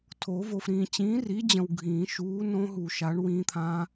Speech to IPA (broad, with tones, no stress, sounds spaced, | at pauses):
tʰ o˨˩˦ v o˨ f ɾ ĩː˨ t͡ɕ ĩː˨˥ r i˨˥ d͡ʑ ə̃˨ w ɡʱ ĩː˨˩˦ ʃ uː˨˥ n õ˦˥ ɦ u˨ ʃ a˨˥ ɳ w ĩː˦˥ t̪ʰ ã˦˥